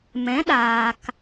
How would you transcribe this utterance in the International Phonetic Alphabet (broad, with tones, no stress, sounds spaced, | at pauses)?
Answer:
m ɛ̃˨˦ ɗ aː˨ k